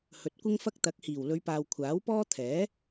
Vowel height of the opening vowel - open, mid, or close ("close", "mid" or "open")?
mid